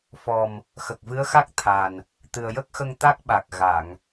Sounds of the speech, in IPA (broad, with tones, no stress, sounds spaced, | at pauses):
f ɔ˨˩ m | x ə˨˩ k̚ v ɨ˧˥ ə̯ x a˦˥ k̚ t̪ʰ a˨˩ n | t̪ ɨ˨˩ ə̯ j ə˦˥ k̚ x ə˧ ŋ t̪ a˦˥ k̚ ɓ a˨˩ k̚ ɣ a˨˩˨ ŋ